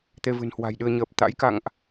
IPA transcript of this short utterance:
t̪e˧vɨ̤˨˩nhwa̤˨˩jɗɨ˧ə̯ ɲəː˨˩p̚t̪a̰˧˥j ka̰˧˨ŋʔ

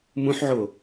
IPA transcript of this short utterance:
mũħʕo

